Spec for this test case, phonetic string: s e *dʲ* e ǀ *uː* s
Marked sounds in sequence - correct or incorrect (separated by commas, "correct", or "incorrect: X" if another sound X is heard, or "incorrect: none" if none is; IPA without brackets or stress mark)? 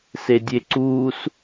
correct, correct